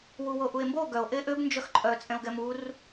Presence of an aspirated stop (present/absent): absent